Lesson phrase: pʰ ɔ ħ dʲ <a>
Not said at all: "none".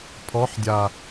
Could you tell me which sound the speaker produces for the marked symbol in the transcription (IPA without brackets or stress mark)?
a